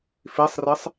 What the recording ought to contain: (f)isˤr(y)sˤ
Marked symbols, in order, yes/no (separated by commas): yes, no